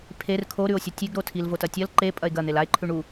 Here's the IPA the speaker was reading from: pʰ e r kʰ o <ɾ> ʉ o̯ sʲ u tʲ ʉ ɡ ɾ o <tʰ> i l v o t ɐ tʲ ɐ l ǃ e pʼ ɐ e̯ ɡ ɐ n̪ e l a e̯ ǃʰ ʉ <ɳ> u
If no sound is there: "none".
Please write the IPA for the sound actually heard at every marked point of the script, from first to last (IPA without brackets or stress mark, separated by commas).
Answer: ɾ, tʰ, ɳ